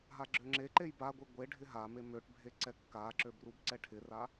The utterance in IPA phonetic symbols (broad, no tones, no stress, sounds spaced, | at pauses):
ɦ a ɡ͡ǁ ø ŋ͡ǁ e ǃ e j b a ɡʷ i ɡʷ e ɖʱ ɪ ɦ a m e m ø ʈ bʱ e ǀ ɛ kː a ǁ ø b r u b ǀ ɛ ʈʰ ɪ r a